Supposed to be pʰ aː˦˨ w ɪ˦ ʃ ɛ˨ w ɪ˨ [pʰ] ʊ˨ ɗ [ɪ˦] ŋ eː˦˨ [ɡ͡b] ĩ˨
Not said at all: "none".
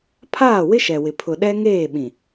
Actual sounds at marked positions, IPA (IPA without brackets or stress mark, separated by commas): pʰ, ɛ˦, ɓ